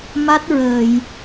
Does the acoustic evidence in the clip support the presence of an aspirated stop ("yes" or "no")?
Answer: no